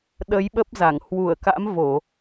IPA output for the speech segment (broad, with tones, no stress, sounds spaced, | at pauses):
ɗ ə˨˦ j ɓ ə˦˥ p̚ z a˧˩ ŋ h w u˧˩ ə̯ k a̰˧˥ m v o˧˩˨